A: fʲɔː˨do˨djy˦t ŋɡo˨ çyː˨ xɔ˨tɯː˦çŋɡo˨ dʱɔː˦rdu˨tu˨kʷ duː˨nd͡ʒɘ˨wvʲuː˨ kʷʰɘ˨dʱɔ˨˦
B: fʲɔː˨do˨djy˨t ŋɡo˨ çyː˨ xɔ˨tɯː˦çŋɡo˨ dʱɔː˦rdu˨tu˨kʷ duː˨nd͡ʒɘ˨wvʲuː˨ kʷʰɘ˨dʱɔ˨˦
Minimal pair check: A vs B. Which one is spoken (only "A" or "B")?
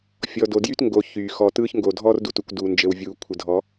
A